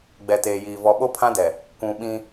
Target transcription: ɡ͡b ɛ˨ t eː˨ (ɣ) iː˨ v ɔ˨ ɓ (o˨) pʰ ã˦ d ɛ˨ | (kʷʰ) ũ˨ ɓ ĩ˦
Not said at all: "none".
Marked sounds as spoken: j, o˦, kʷ

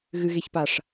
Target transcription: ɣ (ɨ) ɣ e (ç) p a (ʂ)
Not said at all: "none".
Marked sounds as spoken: ɨ, ç, ʂ

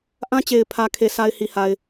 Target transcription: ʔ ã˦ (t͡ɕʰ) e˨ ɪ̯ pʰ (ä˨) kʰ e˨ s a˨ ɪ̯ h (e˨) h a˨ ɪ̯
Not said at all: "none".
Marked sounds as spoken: t͡ɕ, ä˨, i˨

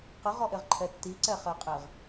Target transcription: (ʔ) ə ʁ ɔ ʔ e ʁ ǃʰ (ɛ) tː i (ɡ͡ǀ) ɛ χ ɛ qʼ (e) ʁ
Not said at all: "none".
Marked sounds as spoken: q, ɛ, ǀ, e

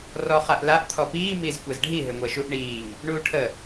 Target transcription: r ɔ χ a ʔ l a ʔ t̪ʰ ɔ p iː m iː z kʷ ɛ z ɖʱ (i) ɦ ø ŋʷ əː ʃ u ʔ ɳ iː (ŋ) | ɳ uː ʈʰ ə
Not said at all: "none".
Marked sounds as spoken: i, ŋ

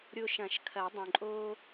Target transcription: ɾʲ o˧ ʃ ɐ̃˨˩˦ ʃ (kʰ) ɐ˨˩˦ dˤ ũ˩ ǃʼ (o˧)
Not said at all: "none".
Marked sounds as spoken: kʰ, oː˧

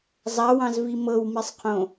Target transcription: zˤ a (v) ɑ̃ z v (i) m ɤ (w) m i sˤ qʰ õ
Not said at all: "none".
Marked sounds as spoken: w, i, w

